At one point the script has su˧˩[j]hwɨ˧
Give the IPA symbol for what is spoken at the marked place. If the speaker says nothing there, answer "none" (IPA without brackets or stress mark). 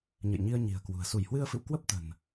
j